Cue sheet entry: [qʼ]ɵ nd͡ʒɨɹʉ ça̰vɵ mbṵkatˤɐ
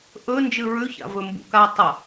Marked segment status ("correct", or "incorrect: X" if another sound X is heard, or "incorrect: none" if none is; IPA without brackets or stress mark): incorrect: ʔ